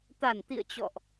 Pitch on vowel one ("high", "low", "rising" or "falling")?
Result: low